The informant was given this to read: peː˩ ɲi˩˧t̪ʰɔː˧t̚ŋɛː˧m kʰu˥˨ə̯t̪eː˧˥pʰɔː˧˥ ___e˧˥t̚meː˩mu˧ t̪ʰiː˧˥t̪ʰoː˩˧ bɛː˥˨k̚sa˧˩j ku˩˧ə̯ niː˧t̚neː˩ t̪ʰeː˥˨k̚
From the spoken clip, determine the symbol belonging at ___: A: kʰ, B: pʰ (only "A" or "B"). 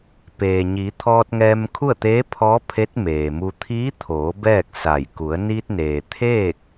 B